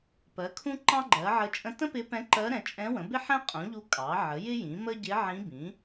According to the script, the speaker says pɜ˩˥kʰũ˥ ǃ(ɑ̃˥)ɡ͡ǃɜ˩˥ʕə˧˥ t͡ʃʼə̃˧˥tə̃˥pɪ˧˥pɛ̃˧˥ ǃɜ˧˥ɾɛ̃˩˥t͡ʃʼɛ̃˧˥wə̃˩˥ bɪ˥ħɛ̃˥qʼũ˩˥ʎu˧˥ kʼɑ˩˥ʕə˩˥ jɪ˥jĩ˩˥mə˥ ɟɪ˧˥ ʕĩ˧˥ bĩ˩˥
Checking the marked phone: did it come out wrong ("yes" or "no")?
no